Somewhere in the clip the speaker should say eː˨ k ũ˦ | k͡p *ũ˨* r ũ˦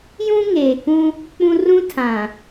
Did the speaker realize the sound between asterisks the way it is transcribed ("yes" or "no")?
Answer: no